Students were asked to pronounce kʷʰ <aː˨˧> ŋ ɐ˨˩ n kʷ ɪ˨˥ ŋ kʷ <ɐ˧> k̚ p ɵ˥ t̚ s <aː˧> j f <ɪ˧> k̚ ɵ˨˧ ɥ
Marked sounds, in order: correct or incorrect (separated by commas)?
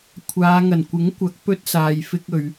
correct, incorrect, incorrect, incorrect